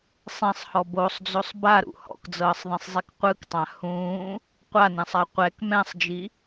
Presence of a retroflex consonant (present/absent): absent